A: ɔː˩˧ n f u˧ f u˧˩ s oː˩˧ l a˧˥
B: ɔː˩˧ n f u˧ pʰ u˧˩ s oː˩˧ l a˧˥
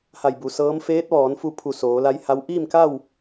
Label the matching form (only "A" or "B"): B